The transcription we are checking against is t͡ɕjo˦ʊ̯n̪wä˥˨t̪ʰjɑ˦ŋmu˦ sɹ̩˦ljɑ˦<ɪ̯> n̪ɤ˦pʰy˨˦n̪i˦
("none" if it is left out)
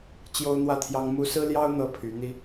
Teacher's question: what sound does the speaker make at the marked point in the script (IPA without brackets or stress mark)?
ʊ̯